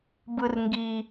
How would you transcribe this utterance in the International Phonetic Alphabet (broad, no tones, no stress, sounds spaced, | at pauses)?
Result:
b ɯ r ŋ ɡ i